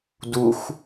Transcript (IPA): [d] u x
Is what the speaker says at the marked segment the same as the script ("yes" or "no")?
yes